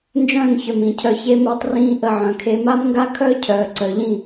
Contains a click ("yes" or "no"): yes